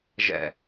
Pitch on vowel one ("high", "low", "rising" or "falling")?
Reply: low